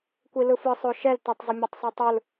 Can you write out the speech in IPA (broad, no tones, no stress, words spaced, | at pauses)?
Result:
kʷilɯfɯ sˤoʃɛl tətˤ zˤəmʲɛtˤsˤotˤɯl